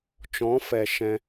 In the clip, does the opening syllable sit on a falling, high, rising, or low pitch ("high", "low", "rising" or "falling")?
rising